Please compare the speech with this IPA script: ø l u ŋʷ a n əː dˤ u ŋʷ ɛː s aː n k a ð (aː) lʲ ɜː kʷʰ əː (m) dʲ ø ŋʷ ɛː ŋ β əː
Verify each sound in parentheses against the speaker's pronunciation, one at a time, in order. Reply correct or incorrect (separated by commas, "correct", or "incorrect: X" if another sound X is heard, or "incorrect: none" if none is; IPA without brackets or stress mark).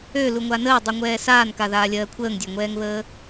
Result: correct, incorrect: ŋ